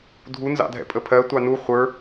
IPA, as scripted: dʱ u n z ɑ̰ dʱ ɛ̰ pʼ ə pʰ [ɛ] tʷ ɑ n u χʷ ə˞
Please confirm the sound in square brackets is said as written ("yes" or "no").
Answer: no